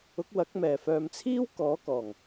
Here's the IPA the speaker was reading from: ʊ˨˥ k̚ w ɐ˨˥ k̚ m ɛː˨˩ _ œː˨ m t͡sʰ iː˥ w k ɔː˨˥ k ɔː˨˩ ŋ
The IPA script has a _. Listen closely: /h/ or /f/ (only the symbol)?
f